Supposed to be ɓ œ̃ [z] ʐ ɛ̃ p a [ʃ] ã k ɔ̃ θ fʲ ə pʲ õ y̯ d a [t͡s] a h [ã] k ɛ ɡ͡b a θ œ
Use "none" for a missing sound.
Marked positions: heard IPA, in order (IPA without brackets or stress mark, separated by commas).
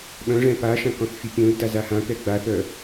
none, ʃ, z, ã